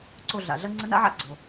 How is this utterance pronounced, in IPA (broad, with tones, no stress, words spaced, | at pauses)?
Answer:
ǀo˦˨ɮa̰˩ɮɐ˥ ŋ͡ǀə˧˥na̰˧˥ʕa̰˧˥ ɡ͡ǀo˩